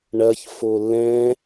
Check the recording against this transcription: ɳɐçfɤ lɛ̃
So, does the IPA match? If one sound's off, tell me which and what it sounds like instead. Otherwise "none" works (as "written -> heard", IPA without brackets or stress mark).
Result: ɤ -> o